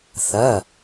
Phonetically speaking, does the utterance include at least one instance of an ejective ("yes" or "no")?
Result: no